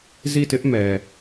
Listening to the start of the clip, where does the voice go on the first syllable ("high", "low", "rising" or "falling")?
falling